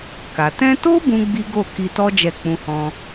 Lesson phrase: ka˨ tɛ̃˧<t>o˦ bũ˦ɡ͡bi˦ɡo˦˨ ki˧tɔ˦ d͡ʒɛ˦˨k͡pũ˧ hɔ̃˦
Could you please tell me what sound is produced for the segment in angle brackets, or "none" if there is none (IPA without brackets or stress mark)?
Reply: t